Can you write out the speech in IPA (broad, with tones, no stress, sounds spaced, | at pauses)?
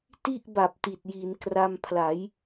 t i˥˩ ʔ b a˨˩ p̚ t i˨˩ t̚ j i˩˦ n k r a˧ m pʰ l a˩˦ j